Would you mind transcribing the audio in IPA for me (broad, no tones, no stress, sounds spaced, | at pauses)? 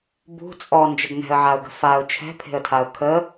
b ṳ t͡sʼ ɔ n d͡ʒ ə ɡ n ɛ̤ ə̯ ʕ a ʊ̯ ɡ ə̤ f a ʊ̯ t͡ʃʰ ɛ̤ pʰ e̤ ə̯ tʰ a ʊ̯ kʰ ə